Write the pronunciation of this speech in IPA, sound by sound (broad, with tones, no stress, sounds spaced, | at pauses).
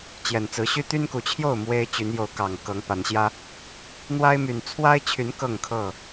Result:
t͡ɕ j ɛ˨˩ n t͡s ɹ̩˨˦ ɕ y˦ t̪ y˦ n k u˨˩ t͡ɕʰ j o˥˨ ʊ̯ m w e˦ ɪ̯ t͡ɕ y˨˦ n j o˨˦ ʊ̯ k ɑ˨˩ ŋ k ɤ˨˦ ŋ p a˨˦ n ɕ j ä˦ | n̪ w a˦ ɪ̯ m y˨˩ n t͡sʰ w a˦ ɪ̯ t͡ɕʰ y˨˦ n k ɤ˥˨ ŋ kʰ ɤ˥˨